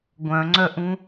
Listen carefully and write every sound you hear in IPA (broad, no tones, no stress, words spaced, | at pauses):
ɡʷœ̃ŋ͡ǀœʔũ